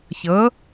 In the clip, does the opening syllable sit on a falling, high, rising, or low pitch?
rising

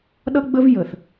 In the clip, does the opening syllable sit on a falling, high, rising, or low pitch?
high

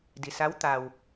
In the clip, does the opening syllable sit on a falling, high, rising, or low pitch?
low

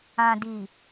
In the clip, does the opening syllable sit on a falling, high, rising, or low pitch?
low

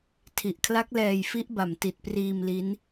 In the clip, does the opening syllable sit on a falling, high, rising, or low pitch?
low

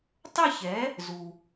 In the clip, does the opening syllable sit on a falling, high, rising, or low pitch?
falling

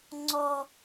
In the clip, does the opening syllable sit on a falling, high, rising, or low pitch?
high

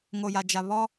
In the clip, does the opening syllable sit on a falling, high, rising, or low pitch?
low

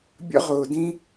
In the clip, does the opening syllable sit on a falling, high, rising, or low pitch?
high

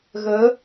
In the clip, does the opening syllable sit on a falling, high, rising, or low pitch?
rising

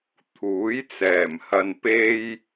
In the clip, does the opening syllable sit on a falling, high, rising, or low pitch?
rising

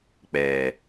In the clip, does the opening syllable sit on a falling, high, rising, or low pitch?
low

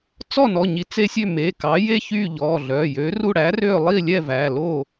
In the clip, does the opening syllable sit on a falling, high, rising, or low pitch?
falling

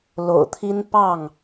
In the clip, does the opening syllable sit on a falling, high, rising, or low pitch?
low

